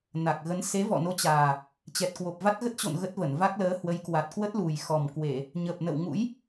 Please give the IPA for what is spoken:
n a˨˩ k̚ ɣ ə˨˦ n s e˨˦ v ɔ̰˧˨ n o˨˦ t͡ɕ aː˨˩ | t͡ɕ ɛ˨˩ t̚ k w o˨˩ p̚ v a˦˥ t̚ ɣ ə˦˥ t̚ t͡ɕ o̰˧˨ n ɣ ə˦˥ t̚ v ə˧˩ n v a˦˥ k̚ l əː˨˦ h w ə˨˦ j k w a˨˩ t̚ k w ə˦˥ t̚ l u˨˩ j x ɔ˨˩ m k w e˧˩˨ | ɲ ə˨˩ p̚ n ə̰˧˨ w ŋ ṵ˧˥ j

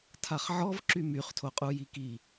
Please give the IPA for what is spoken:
tʰ a χ ʕ ɔ v ǁ y m y χ tʰ o qʼ u j i k i

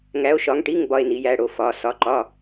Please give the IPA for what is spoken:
ŋ æ˨˦ o̯ ʃ ɒ˨˦ ŋ ʈ i˧˥˧ ŋ b ɒ˧˥˧ e̯ n i˨˦ j æ˧˥˧ ɽ o˨˦ f ɒ˨˦ s ɒ˧˥˧ ǃ ɒ˧˥˧

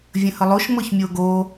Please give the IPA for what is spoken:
vʲ ə̃ h ə lˠ o ʃ m ɤ ç mʲ o ɡ o

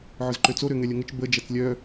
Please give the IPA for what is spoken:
ʕ ʊ z ǃ ø t͡s o ɾ ø ŋ ɛ lʲ ɐ ŋ ə t͡ʃ b ə d͡ʒ ɐ t͡s lʲ œ

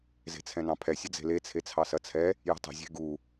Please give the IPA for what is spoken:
z e̤ t͡sʰ ɛ̃ n ɑ̃ pʰ ɛ sʲ ə d͡z e̤ l e t͡sʰ e t͡sʰ ɑ s ɐ t͡sʰ ɛ | j ə̤ tˤ ə̤ zʲ e̤ ɡ u

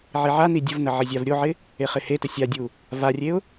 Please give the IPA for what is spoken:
ʕ i ʕ a n i dʲ ə v n ə ʕ ɪ zʲ a v ɾʲ o ʕ ɪ | e χ ɪ h e t ə sʲ a dʲ u | v a rʲ e ʊ̯

